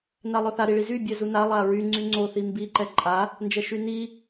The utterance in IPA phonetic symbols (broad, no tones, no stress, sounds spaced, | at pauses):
n a lˠ œ θ a ɾ i ɭ i z y bʲ ɛ z u n a lˠ a ɹ y ŋ͡ǀ y ŋ͡ǀ o θ i m b i ǃ ɛ ǃʼ a | n d͡ʒ ɛ ʃ y n i